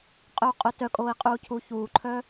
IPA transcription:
qʼ œ u̯ qʼ o t œ kʼ oː i̯ qʼ uː cʰ u ç uː ǃʰ œ

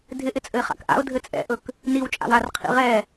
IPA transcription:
dʱ ɪ ʔ ɪ t͡sʼ ɘ ɪ̯ χ a̰ k ʔ a̰ ʊ̯ dʱ ɘ t͡sʼ ɛ̰ ʔ ɵ k | n i w t͡ʃʼ a̰ w a r qʰ ḭ ʁ ɛ

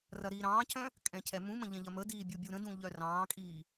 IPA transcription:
r ɐ ɾ iː ɾ ɑ̃ː cʰ œ̃ | kʼ ɛ̃ cʰ ɛ m ũ m ə̃ ʎ ɛ̃ ʎ ɐ m ə d iː bʲ u bʲ u ɾ ə̃ d ũ ʎ œ r ɑ̃ː kʼ iː

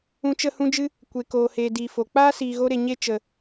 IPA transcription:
ũ˧ t͡ʃ ə˦˨ h ũ˦ d͡ʒ ɨ˦ | kʷ e˨ k oː˨ h eː˨ d i˨ f o˨ k͡p aː˦ s iː˨ ɣ o˧ ɾ e˨ ɲ e˦ t͡ʃ ə˨

